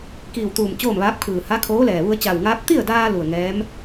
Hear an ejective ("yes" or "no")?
no